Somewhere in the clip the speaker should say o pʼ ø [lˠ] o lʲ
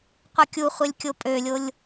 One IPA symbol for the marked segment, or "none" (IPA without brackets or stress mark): lʲ